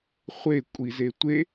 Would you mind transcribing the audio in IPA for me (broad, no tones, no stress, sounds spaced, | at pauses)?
χʷ e kʷʼ i z e tʷ e